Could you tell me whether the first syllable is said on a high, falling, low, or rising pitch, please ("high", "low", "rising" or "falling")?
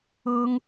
high